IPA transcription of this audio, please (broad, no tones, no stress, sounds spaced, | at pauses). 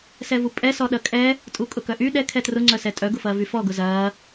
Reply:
s ɛ v u pʼ ɛ s ɔ ɗ ɐ kʼ ɛ | tʼ u kʼ ʊ k œ ʔ y ɗ ɛ kʰ ɛ t r ʊ ŋ͡ǀ œ s ɛ tʼ œ ɡ ʊ f ɐː v y f ɔ ɡ ʊ z ɐː